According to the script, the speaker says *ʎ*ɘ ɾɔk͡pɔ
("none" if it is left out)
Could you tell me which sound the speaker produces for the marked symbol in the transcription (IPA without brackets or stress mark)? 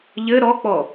ʎ